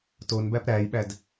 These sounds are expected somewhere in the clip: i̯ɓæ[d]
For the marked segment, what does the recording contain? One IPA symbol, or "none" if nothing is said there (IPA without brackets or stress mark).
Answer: d